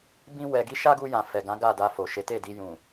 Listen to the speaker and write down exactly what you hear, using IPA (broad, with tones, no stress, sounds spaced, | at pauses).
b ĩ˦ w ɛ˧ ɡ i˦ ʃ a˦ ɡ u˧ j ã˨ f ɛ˨ ɡ ã˨˦ ɡ a˦˨ d a˧ f o˨ ʃ e˨˦ t e˦˨ d i˧ j ũ˨